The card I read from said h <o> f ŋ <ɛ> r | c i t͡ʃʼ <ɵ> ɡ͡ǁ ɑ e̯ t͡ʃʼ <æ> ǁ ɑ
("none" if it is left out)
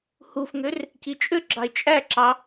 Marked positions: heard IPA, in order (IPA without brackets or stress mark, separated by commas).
u, ø, ø, æ